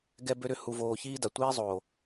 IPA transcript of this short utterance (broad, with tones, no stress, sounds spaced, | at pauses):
ɡ ɛ˦ b ø˦ ɾ ʏ˦ h u˧ v oː˧ ç iː˦ d a˨ tʷ iː˦ zˤ oː˨